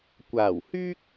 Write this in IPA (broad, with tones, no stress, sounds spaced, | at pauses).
kʷ aː˨˩ w h yː˥ k̚